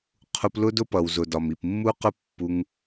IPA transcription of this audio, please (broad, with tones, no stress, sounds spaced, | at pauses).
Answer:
qʰ u˧ p l ʊ˦ d ʊ˦ p ʌ˨ w z ʊ˨ d ɒ˨ m i˨ p mː u˦ q ʊ˦ pː u˧ ŋ